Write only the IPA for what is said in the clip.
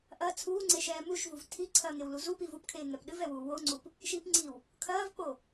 ʔ ɐ t͡sʰ uː ŋ͡ǀ e ʃ ɛː m u ʃ v u v tʰ i ǀʰ ɐː ŋ e w l u z u p i v u p kʰ eː ŋ ɛ p ɗ ɨ v ɛ w uː w o ŋ͡ǀ u p | ʃ i p ŋ͡ǀ i w | kʰ ɐː v k͡p o

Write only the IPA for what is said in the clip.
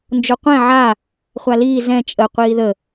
n d͡ʒ o qʷ ɛ̃ ʕ a | χʷ a l iː z ɛ̃ t͡ʃʼ ə qʷ iː ð ə

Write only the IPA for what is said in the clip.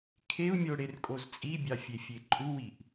kʰ e u̯ mʲ o ɽ e r kʼ o z t͡sʼ i bʲ ɑ fʲ e fʲ e ǃʼ u w i ʔ

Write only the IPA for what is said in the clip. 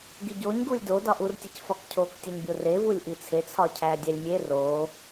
ɡ i ɟ o ɲ ɡ u lʲ d o d ɒ ʔ u r tʲ e c f ɒ k cʰ o k tʲ ɒ ɲ bʲ o r e v u lʲ ʔ i t͡sʰ e t͡sʰ ɒ cʰ æ dʲ æ lʲ mʲ e r o

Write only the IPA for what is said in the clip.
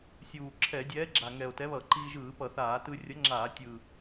sʲ uː˨˩ ǁʰ ɛ˧˩˧ dʲ ɛː˨˥ ɡ͡ǁ a˨˩ ŋ ɛ˨˩ o̯ t ɛ˨˥ β ʌ˧˩˧ ǃ iː˧ ʒ ɯː˧˩˧ p ʌ˧˩˧ θ aː˧˩˧ t ɯ˧ rʲ ʌ˨˥ ŋ͡ǁ aː˧˩˧ tʲ ɯː˨˩

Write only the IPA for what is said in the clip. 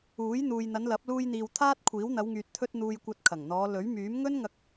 uː˨˥ j n̪ uː˨ j n̪ ɐ˨˧ n l ɐ˨˥ p̚ l uː˧ j n̪ iː˨ w t̪ʰ aː˥ t̚ kʷʰ iː˨˥ w n̪ ɐ˨˧ w ŋ yː˨ t̚ t̪ʰ ɵ˧ t̚ n̪ uː˨ j kʷ ɐ˨˥ t̚ kʰ ɐ˨˩ ŋ n̪ ɔː˨˧ l ɵ˨˥ ɥ m yː˨˥ m ŋ ɵ˥ n ŋ ɐ˧ k̚

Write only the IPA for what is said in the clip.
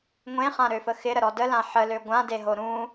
ŋʷ ẽ χ ã ɾ ø f ə x ɪ ɾ ə ɾ ɔ d ə l ã ħ ə l ø ɡʷ ã d e ɦ o ɾ ũ

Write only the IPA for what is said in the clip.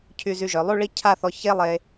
cʰ y˧ z y˧ ʒ œ˩˧ lˠ y˥˧ ɭ i˥˧ cʰ a˥˧ θ ɔ˧ ç e˥ lˠ e˧

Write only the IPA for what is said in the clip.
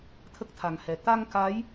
t̪ʰ ə˦˥ k̚ t̪ʰ a˨˩ ŋ h ɛ˨˩ t̪ a˧ ŋ k a˧˥ j

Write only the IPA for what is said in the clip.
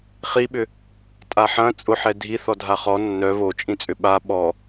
χ i ɓ ʏ | tʼ a ħ ɐ̃ t͡sʼ ʊ ħ ɛ dʱ i θ ɔ dʱ a χ ɔ nː œ β o t͡ʃʼ ĩ t͡sʼ ʏ ɓ a ɓ ɔ

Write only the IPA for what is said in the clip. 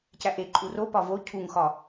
c æ ʔ e ǃʼ u r o p ɒ v o cʰ u ŋ x ɒ

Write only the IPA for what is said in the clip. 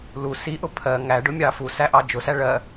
l u s i ʔ ʊ pʰ ɜ ŋ æ ɖ ʊ mʲ ɑ f u s æ ʔ ɑ d͡ʒ ʊ s æ ɭ ɜ

